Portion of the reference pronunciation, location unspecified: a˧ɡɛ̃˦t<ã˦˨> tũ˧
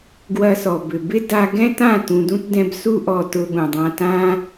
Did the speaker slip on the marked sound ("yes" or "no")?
no